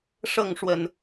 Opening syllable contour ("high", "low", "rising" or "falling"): falling